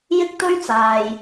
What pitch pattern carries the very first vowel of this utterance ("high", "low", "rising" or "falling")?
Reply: high